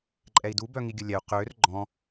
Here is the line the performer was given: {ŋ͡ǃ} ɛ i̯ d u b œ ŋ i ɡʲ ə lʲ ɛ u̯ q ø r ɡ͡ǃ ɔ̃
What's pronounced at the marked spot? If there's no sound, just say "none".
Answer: ǃʼ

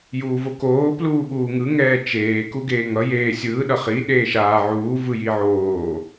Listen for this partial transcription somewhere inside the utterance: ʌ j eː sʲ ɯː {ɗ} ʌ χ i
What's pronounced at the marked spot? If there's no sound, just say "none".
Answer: ɗ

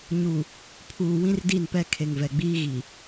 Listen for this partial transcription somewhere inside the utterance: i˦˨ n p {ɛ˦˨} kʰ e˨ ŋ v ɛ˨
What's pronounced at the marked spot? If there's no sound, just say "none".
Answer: ɛ˦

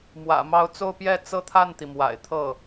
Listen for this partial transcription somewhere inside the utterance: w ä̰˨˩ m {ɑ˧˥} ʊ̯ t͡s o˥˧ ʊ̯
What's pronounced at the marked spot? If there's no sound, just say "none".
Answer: ɑ˧˥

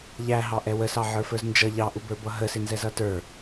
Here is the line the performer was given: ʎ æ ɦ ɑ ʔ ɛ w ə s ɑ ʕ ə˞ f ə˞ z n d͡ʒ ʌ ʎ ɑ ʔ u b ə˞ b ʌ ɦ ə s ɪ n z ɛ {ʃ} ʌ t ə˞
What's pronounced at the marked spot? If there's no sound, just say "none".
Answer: z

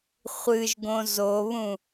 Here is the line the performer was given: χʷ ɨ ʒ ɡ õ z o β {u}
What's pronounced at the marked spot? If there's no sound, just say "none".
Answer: ũ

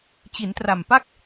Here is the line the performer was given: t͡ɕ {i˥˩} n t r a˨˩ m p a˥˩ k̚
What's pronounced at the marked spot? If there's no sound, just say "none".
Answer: i˩˦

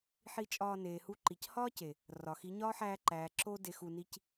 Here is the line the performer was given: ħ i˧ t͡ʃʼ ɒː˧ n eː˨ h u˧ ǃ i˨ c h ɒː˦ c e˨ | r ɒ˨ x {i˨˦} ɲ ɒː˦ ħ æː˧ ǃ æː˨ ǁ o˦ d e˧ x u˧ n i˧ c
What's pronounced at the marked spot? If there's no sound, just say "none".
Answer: i˨˦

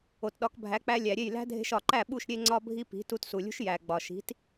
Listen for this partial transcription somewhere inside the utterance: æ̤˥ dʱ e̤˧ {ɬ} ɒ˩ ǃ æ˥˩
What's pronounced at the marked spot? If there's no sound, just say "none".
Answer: ʃ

